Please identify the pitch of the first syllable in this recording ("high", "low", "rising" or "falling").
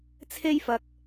high